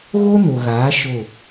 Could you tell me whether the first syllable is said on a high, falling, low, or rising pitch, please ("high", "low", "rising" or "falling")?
high